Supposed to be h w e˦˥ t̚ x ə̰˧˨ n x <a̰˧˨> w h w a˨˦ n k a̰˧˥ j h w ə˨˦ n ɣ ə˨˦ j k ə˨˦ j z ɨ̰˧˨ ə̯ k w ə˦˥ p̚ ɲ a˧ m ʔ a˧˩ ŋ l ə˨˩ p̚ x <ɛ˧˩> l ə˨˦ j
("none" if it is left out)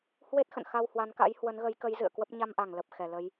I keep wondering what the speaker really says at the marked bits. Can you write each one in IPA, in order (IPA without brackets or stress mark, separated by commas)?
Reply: a˧, ɛ˧˩